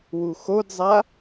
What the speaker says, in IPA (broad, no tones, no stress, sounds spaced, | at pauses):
w u x o d zˤ a